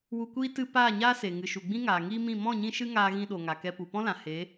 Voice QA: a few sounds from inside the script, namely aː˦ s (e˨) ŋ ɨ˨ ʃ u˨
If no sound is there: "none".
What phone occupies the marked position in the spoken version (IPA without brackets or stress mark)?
e˨